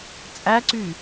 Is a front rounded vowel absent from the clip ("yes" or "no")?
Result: no